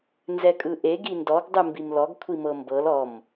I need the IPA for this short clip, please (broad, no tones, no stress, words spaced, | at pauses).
nzɛkʼɯʔeɡ indɔɡ dˤɯmbimlɔɡ kʷʰimɤmbɤl ɔm